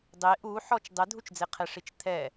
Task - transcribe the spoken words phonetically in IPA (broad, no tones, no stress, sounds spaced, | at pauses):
dˤ e ʔ u ħ ɔ t͡ʃ dˤ ɛ dʱ u t͡ʃ d͡z e qʰ ɛ ʂ i t͡ʃ t̪ʰ ɛ